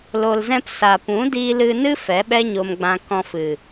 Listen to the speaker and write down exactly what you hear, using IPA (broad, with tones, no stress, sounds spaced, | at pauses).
l o˧ l z ɛ̃˦ p s a˨ p ũ˨˦ d iː˧ l ɨ˧ n ɨ˦ f ɛ˨˦ ɓ ɛ˦ ɲ o˧ m ɡ͡b ã˧ k ɔ̃˧ f ɨ˨